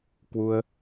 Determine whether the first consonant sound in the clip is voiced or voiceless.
voiceless